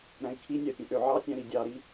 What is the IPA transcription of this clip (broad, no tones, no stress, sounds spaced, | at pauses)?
ɾ æ̃ i̯ kʰ i nʲ æ pʲ ẽ ʔ ø ʕ ɑ tʲ æ̃ ɾ i dʲ ɑ ɾ i